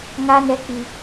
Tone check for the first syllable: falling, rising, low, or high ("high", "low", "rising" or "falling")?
high